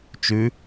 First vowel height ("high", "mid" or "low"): high